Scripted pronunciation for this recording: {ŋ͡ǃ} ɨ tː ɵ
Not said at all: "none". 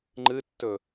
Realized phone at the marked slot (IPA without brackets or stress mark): ŋ͡ǃ